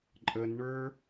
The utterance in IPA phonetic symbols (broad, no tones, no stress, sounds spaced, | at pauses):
ǃʼ ə n ɳ ə˞